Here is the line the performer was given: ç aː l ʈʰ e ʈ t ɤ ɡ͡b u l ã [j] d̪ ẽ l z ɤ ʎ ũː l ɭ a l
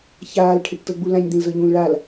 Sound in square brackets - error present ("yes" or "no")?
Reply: yes